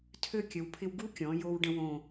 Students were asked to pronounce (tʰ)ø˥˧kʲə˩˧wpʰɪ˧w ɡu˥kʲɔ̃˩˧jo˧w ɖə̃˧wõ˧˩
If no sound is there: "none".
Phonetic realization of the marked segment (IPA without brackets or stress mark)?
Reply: tʰ